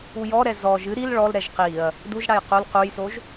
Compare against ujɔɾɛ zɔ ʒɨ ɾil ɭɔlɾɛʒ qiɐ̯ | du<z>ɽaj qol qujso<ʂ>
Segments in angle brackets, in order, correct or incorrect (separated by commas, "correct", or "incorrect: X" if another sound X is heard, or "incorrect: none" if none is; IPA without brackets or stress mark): incorrect: ʒ, incorrect: ʒ